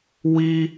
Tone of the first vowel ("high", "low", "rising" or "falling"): high